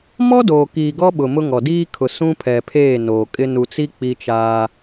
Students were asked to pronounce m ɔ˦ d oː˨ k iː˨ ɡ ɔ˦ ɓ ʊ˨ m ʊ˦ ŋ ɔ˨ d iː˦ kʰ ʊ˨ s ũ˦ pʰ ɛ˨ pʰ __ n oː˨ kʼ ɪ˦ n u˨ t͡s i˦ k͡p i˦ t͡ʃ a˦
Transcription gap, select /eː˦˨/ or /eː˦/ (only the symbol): eː˦˨